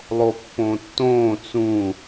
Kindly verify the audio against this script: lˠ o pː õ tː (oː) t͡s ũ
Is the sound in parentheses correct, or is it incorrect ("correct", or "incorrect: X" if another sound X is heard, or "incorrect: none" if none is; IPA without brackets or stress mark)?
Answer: incorrect: õː